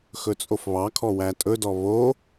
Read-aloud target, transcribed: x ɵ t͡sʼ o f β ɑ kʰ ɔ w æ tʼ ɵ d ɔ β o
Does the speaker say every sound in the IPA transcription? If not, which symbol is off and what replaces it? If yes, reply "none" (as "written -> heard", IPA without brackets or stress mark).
none